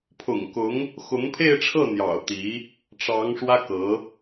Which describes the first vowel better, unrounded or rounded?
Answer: rounded